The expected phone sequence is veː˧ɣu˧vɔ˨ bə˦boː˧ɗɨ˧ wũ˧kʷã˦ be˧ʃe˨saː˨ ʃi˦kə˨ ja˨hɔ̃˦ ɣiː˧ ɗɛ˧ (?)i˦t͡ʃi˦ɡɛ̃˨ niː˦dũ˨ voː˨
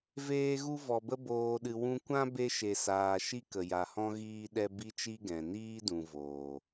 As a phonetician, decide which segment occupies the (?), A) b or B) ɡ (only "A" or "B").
A